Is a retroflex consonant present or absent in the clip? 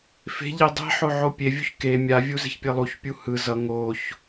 absent